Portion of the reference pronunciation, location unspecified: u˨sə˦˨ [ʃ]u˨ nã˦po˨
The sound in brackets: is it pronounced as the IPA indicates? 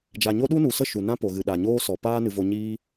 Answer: yes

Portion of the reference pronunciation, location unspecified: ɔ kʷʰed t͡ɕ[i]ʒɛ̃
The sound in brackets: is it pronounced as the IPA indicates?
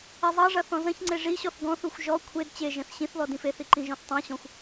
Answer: no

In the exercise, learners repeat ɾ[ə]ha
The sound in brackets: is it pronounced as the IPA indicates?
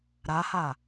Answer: no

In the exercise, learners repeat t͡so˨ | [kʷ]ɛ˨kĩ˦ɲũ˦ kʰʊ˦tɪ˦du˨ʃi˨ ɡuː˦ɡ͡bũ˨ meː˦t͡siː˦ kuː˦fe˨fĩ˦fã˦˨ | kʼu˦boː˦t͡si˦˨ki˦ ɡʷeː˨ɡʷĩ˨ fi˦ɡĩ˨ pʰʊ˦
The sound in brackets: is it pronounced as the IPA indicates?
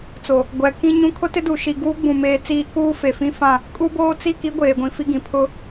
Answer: no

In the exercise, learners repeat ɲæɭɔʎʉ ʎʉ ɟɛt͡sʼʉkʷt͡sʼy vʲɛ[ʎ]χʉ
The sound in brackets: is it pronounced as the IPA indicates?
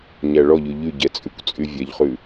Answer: yes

